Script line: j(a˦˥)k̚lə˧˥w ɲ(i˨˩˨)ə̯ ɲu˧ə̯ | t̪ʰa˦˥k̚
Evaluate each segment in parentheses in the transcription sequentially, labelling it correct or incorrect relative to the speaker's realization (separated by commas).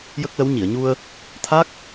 incorrect, correct